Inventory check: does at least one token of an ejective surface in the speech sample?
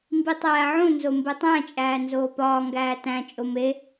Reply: yes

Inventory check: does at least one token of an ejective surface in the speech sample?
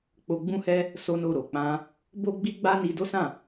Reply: no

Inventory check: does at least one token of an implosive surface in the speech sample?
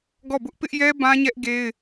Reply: no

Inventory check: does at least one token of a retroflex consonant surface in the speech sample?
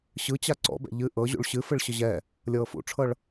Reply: yes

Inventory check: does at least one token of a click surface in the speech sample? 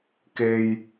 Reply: no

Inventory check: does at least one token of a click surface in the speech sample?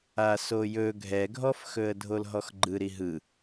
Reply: yes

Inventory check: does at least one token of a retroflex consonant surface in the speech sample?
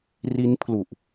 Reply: no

